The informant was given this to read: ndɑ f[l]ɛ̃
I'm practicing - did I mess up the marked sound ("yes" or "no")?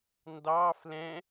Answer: no